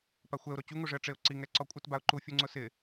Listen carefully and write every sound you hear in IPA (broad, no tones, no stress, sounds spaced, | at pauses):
p a xʷ ɛ ʊ̯ ɾ o t͡ɕ u ŋ u ʐ ɪ ə̯ ʈ͡ʂ e ʊ̯ ǀ i ŋ ɛ ǀ ɔ kʷʼ ɪ t b a ʊ̯ ǃ u fʲ u ŋ͡ǀ ʊ s ɪ